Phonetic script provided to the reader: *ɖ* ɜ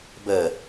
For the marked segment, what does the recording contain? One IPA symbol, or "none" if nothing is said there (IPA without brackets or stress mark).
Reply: b